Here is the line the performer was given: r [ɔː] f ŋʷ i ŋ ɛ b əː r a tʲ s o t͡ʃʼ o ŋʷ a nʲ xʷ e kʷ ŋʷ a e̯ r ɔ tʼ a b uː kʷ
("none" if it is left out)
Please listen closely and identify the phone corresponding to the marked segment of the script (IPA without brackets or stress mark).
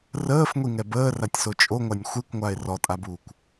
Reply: əː